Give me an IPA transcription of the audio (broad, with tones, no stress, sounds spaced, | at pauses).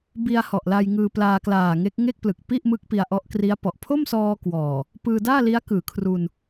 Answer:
b i˧ a̯ h ɔ˨˩ ʔ l a˧ j ŋ ɯː˧ p l aː˧ k l aː˨˩ ŋ e˦˥ k̚ ŋ e˥˩ k̚ p l ɯ˨˩ k̚ p i˥˩ ʔ m ɯ˦˥ k̚ p i˧ a̯ ʔ ɔ˦˥ ʔ k r i˦˥ a̯ p ɔ˨˩ ʔ pʰ o˥˩ m s ɔː˧ k w ɔː˨˩ | p ɯː˧ d aː˥˩ l i˦˥ a̯ k ɯː˩˦ kʰ r u˧ n